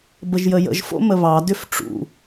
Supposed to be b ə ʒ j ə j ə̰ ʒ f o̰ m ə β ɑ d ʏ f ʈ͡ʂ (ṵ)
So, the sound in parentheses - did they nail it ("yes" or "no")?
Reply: yes